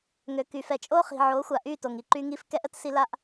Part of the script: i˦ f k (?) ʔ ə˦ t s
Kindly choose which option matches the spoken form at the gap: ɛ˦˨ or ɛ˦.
ɛ˦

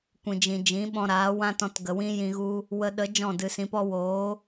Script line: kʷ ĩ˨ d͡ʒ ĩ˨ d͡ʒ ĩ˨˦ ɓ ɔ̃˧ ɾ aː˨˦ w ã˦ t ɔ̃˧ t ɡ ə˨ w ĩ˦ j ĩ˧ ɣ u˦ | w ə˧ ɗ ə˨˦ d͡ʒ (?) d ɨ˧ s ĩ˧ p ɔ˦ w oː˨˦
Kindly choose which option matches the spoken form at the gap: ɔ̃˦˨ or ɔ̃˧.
ɔ̃˦˨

